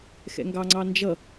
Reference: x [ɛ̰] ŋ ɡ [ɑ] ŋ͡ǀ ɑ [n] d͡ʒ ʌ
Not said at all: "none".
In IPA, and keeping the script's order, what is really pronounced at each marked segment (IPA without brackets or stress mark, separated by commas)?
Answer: ɛ̰, ɑ, n